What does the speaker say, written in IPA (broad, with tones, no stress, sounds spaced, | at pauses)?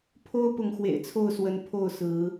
pʰ o˦ ʊ̯ p ʊ˨˦ ŋ x w ḛ˨˩ ɪ̯ t͡sʰ o˥˨ ʊ̯ s w ə˨˦ n pʰ o˥˨ ʊ̯ s ɹ̩˨˦